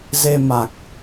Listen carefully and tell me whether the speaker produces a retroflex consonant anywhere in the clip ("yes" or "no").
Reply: no